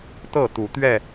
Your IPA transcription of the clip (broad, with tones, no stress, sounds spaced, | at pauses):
t̪ ɤ˥˨ t̪ u˨˦ t̪ ɥ ɛ˥˨